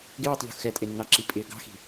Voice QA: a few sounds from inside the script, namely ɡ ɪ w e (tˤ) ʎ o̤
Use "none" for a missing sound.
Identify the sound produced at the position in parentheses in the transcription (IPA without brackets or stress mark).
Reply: tˤ